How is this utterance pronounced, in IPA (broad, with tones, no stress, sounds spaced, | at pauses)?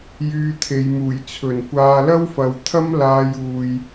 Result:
j yː˧ t̪ʰ e˨˧ j m uː˨˩ j t͡sʰ ɵ˨˩ n kʷ aː˧ l ɐ˥ w f ɐ˨ w t̪ʰ ɐ˥ m l aː˧ j uː˨ j